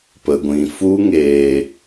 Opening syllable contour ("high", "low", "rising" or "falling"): low